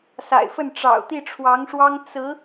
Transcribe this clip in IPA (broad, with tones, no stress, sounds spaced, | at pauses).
s a̰˨˩ ɪ̯ f ə˥˩ n ʈ͡ʂ ɑ̰˨˩ ʊ̯ t̪ i˥˩ ʈ͡ʂʰ w ɑ˧˥ ŋ ʂ w ɑ˥ ŋ t͡s ɹ̩˧˥